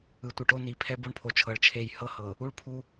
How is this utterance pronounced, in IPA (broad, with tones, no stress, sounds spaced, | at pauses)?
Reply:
ɯ˨ tʷ i˨ ʈ o˦ n i˨ pʰ ɛ˦ b o˦ ɳ pʰ o˨ t͡ʃʰ ɤ˨ ɭ t͡ʃʰ e˨ j h ɤ˦ h ɤ˨ | u˦˨ ɭ pʰ u˦